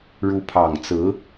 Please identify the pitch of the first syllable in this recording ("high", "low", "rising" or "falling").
rising